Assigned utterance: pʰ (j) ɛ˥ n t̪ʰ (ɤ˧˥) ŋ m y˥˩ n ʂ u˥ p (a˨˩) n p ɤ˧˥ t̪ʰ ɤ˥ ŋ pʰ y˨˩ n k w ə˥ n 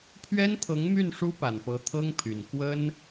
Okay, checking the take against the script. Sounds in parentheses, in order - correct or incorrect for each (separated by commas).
incorrect, correct, correct